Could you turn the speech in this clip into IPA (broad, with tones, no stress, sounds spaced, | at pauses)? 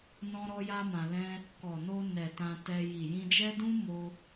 n ɔ̃˦ ɾ ɔ˦ j a˦ m ã˧ l ɛ̃˦ | k ɔ˨ n o˧ n ɛ˨ t ã˧ t ɛ˧ j i˨ j ĩ˧ d͡ʒ ɛ˦ d ũ˦ m o˦